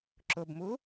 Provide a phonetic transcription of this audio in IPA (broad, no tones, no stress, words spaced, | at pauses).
ǁʊbmu